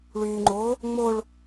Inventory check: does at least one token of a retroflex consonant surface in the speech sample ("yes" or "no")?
yes